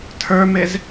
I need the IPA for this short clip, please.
tʰ ə˞ m e z

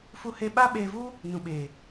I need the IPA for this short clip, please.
f u˧ h e˧ ɓ a˦ ɓ eː˧ v u˦ | n ũ˨ ɓ eː˨

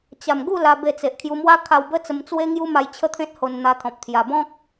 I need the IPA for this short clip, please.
t͡ɕ a˨˩ m ɡ u˥˧ l a˧ b e˧ t͡s e˨ ʔ kʰ j u˧ m w a˦ kʰ a˧ w b ə˦ t͡s ə˧ m t͡s w e˦ ŋ j u˦ m a˧ j t͡ɕʰ ə˦ t̪ʰ ẽ˦ t̚ h o˧ n n̪ a˧ t̪ʰ ɔ̃˨ p̚ t̪ʰ j a˨˩ b ɔ̃˦ k̚

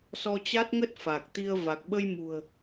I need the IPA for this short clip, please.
s ɔ˧ t͡ɕ a˦˥ t̚ ŋ ə˦˥ t̚ f a˨˩ k̚ t̪ i˧ ə̯ v a˨˩ k̚ ɓ ə˧ j m ṳ˨˩ ə̯

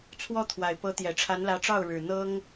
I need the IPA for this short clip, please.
t͡sʰ w ɔ˥ t̪ʰ w a˨˩ ɪ̯ p ɤ˧˥ t̪ j ɛ˨˩ ʈ͡ʂʰ a˧˥ n l ä˧˥ ʈ͡ʂ ɑ˥˩ ʊ̯ ɻ ɻ̩˨˩ n̪ ɤ˥ ŋ

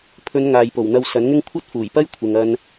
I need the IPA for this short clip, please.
pʰ ɵ˨˧ n ŋ aː˨ j p o˨˩ w n̪ ɐ˧ w s ɐ˨˥ n ŋ ɪ˥ ŋ kʷʰ ɐ˥ t̚ f uː˨˩ j p ɐ˥ j kʷʰ ɪ˨ ŋ ɐ˧ n

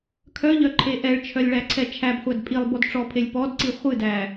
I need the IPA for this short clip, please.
kʰ œ ʎ œ ǃʰ e ʔ ɛ ɭ t͡ʃʰ œ lʲ ɭ æ ǀʰ ɛ t͡ʃʰ æ b χʷ æ d pʼ i lˠ b ɔ d ʈ͡ʂ ɔ pʰ e lʲ p ɔ d ǀ i χʷ ɨ d æ

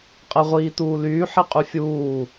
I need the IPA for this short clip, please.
qʼ e ʁʷ iː t uː l yː ħ i qʼ y fʲ uː

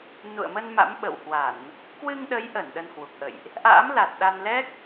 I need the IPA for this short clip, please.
n ṵ˧˨ ə̯ m ə˧ n m a̰˧˥ m ɓ ə̰˧˨ w h w a˧˩˨ n | k w ɨ˧ ŋ ɗ ə˨˦ j ʔ ə˧˩ n ɗ ə˧ n h w u˨˩ k̚ ʔ ə̰˧˨ j ʔ | ʔ a̰ː˧˥ m l a˨˩ t̚ ɗ a˧ n l ɛ˦˥ k̚

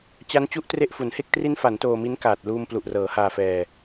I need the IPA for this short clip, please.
t͡ɕ a˦˥ n t͡ɕ u˦˥ ʔ t r e˦˥ ʔ f u˩˦ n h e˥˩ k̚ t r i˦˥ n f a˩˦ n t oː˧ m i˦˥ n k aː˨˩ t̚ l uː˧ m p l u˨˩ ʔ r ɤː˩˦ h aː˧ f ɛː˧

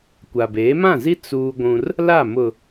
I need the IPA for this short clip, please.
kʷ a˨ b eː˨˦ m ã˦˨ z i˦ t͡s uː˦ ɡʷ ũ˦ r | l a˦˨ m ʊ˨

